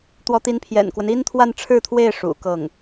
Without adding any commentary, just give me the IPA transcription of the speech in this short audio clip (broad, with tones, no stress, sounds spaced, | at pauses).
t̪ w ɔ˧˥ t̪ i˧˥ n pʰ j ɛ̰˨˩ n k w ə˦ n i˥ n t̪ʰ w a˥˧ n ʈ͡ʂʰ ɻ̩˥˧ t̪ʰ w e˥˩ ɪ̯ ʂ ṵ˨˩ k ɤ˥˩ ŋ